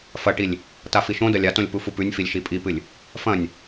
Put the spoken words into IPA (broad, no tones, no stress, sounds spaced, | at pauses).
f ɐ ʈ i lʲ | t a f i ʃ õ d ɐ lʲ a t õ lʲ p u f u p ʉ nʲ f i lʲ ʃ i pʼ i p ɨ lʲ | f ɐ̃ nʲ